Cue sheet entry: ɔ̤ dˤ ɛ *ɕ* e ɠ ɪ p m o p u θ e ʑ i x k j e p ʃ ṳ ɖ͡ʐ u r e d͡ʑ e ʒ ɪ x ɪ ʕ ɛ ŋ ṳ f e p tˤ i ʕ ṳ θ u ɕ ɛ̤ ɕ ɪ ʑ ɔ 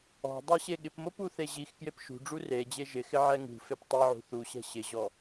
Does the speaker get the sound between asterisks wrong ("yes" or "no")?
no